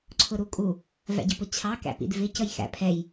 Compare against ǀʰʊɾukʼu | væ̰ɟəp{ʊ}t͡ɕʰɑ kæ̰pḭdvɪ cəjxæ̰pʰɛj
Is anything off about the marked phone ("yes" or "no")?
no